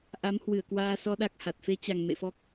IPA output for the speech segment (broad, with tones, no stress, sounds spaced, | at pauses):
ʔ a˨˦ m h w ɨ˧˩ ə̯ k w aː˧ s ɔ˧ ɗ a˦˥ k̚ h a˨˩ t̚ f e˨˦ t͡ɕ a˨˩ ŋ m ḛ˧˨ f ɔ˦˥ k̚